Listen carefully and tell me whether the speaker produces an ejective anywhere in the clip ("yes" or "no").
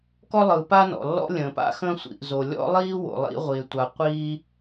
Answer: no